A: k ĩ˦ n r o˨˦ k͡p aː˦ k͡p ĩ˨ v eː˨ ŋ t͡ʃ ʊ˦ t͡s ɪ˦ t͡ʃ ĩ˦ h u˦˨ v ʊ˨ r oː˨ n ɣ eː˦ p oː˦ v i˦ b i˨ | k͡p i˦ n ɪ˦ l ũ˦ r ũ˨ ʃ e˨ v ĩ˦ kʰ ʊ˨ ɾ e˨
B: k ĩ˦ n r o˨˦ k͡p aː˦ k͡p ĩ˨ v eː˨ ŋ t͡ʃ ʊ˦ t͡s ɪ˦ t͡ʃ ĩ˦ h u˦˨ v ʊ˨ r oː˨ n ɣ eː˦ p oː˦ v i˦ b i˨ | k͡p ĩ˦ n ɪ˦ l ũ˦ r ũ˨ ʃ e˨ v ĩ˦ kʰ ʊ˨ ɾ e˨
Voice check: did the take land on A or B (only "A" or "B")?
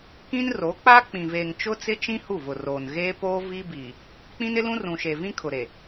B